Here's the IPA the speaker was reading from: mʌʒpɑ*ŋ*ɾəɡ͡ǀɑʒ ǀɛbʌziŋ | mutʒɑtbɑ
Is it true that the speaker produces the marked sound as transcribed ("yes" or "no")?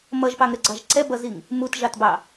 yes